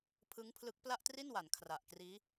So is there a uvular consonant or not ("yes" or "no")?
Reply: no